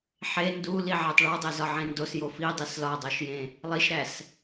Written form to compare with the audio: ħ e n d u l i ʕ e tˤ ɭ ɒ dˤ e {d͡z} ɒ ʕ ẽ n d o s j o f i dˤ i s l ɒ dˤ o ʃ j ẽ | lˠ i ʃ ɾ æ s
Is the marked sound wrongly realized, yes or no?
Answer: yes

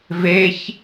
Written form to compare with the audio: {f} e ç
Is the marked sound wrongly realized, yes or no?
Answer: yes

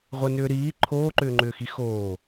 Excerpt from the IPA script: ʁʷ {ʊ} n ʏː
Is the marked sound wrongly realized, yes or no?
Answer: yes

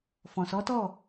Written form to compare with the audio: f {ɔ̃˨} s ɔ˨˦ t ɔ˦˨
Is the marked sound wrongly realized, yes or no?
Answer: no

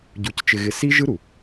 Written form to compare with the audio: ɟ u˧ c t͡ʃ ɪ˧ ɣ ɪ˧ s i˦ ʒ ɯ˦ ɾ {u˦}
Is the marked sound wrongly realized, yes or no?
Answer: yes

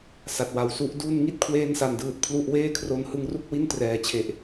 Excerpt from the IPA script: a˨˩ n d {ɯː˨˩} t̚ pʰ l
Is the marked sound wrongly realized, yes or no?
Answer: no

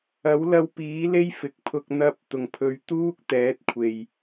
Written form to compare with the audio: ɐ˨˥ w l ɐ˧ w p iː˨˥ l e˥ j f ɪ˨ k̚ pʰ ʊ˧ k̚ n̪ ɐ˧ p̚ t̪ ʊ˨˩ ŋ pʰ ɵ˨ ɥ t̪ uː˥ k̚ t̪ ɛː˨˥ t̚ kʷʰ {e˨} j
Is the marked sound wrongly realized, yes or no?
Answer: no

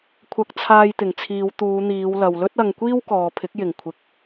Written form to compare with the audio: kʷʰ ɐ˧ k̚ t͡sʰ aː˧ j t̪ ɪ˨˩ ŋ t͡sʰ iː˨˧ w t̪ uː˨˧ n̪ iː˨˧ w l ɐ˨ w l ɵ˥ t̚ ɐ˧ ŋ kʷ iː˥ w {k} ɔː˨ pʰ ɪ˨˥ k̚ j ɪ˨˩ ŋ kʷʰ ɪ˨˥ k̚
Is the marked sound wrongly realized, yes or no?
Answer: no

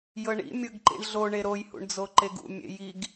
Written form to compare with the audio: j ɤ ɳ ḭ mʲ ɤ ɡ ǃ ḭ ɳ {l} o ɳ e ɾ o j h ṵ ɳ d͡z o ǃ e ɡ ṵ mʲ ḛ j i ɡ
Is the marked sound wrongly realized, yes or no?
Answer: yes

